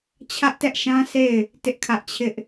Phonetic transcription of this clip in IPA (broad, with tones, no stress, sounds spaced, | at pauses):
t͡ɕʰ ä˦ ʔ t ɛ˦ ʔ ʃ ã˦ sʰ e˦˨ ɪ̯ | t ɪ˦ ʔ kʰ ä˦ ʔ t͡ɕʰ ɪ˦ ʔ